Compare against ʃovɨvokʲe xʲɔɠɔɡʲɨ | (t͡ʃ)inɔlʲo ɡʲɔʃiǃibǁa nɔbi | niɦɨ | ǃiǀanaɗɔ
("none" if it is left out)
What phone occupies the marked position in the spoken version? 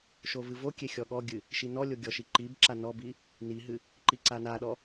ʃ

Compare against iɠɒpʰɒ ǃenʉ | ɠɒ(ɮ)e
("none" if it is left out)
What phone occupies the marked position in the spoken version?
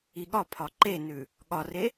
r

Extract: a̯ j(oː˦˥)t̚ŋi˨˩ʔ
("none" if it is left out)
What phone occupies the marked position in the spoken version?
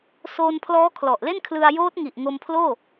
oː˦˥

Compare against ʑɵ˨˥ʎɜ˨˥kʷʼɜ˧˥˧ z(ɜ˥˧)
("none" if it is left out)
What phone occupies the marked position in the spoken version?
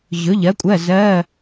ɜ˧˥˧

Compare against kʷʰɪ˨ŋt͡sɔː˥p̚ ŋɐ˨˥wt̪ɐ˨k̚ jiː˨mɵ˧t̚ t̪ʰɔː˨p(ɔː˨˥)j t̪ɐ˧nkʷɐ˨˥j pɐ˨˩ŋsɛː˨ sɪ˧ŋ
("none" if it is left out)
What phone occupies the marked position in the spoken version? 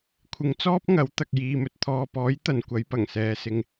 ɔː˨˥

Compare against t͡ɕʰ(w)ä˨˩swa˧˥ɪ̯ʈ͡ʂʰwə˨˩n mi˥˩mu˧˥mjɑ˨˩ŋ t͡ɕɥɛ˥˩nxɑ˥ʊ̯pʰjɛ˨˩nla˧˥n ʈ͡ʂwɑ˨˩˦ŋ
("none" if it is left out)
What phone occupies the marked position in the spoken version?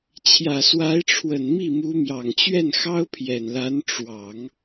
j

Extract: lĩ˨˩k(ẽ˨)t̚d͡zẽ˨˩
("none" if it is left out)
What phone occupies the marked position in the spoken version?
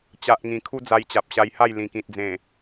ĩ˨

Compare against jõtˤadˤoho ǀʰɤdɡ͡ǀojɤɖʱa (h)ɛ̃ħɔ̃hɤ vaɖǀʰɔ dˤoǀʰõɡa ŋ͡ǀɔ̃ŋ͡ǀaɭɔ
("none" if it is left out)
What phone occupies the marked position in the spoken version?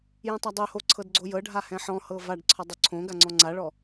h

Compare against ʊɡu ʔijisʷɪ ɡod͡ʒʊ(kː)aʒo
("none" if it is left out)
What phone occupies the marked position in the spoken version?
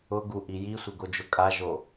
kʼ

